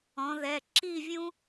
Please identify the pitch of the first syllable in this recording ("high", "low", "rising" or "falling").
rising